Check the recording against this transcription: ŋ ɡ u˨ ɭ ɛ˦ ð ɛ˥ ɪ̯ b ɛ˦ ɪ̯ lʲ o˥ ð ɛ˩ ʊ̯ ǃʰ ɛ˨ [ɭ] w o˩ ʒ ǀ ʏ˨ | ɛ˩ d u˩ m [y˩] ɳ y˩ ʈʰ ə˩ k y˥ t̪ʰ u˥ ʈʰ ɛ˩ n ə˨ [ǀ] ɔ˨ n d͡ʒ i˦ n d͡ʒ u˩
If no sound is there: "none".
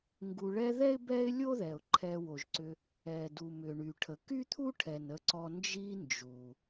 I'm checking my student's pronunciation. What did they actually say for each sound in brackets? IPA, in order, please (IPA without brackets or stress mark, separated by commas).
none, ʏ˩, ǀ